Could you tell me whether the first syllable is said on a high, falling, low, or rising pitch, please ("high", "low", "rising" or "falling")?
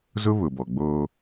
high